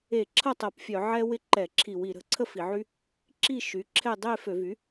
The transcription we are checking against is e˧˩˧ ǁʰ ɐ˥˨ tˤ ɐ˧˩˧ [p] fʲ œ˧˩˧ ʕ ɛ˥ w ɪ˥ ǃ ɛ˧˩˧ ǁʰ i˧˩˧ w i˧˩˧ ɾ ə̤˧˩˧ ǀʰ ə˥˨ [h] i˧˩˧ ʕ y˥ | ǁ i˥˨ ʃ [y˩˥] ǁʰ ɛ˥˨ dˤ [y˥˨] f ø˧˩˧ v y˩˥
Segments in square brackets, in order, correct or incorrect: correct, incorrect: f, correct, incorrect: e˥˨

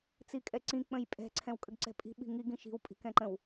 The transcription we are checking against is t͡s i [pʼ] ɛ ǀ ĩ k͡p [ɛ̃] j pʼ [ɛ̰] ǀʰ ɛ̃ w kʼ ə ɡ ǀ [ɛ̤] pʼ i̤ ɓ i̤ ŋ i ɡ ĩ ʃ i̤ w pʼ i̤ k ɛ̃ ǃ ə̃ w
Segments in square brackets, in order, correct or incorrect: incorrect: kʼ, incorrect: ə̃, incorrect: ɛ̤, correct

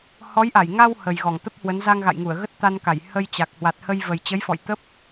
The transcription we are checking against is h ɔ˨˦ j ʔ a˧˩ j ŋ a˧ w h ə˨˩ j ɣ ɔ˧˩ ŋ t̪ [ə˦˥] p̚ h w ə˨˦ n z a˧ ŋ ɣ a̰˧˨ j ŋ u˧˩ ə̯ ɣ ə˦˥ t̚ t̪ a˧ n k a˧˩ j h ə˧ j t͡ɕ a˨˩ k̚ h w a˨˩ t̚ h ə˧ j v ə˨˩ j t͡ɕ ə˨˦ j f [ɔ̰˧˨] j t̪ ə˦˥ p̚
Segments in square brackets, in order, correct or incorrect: correct, correct

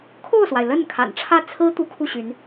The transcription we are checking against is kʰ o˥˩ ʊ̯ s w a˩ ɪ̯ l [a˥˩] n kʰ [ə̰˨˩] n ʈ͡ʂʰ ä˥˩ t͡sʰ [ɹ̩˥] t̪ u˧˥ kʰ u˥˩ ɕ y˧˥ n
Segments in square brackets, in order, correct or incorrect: incorrect: ə˥˩, incorrect: a̰˨˩, correct

